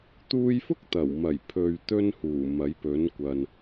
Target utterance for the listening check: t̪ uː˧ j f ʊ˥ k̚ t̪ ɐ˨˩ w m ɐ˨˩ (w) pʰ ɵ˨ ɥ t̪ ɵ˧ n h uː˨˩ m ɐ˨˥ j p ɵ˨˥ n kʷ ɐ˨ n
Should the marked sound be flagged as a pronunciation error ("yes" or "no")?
yes